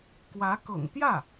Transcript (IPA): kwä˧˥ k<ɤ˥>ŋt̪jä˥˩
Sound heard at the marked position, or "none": ɤ̰˨˩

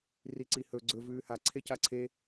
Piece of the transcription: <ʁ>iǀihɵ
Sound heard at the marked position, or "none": r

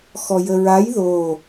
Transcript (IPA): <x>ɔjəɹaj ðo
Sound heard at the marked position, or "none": x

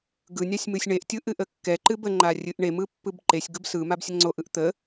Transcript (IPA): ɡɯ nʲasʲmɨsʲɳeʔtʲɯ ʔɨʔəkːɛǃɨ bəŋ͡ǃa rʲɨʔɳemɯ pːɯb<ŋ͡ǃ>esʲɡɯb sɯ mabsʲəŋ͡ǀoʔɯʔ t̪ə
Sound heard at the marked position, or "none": ǃ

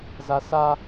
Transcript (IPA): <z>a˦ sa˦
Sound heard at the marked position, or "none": z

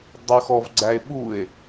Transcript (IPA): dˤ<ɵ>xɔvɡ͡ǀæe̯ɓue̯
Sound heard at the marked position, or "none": ɵ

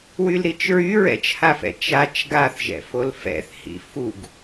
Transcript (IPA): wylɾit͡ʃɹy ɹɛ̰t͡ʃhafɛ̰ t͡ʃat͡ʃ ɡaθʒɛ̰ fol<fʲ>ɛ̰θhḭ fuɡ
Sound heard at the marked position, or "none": f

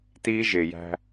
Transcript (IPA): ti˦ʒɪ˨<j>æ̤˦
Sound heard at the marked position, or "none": j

